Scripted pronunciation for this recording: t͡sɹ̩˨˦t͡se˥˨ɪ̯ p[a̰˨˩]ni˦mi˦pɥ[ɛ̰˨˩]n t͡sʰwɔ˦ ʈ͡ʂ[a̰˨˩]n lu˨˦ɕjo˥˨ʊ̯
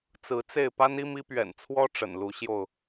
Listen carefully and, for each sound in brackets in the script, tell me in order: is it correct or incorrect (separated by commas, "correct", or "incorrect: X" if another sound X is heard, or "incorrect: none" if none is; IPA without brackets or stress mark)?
incorrect: a˦, correct, incorrect: ə̰˨˩